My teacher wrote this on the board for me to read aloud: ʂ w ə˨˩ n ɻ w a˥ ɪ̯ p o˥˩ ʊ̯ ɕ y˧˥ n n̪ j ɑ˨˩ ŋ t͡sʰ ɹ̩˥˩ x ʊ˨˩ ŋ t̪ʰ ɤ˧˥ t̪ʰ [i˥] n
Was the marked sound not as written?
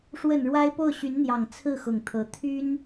yes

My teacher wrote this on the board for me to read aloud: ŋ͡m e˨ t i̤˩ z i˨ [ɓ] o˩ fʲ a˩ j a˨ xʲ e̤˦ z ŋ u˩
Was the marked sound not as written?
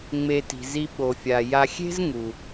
no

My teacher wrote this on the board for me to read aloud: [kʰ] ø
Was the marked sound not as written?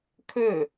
no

